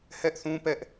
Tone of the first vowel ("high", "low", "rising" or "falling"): high